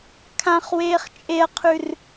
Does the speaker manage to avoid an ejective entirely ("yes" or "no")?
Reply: no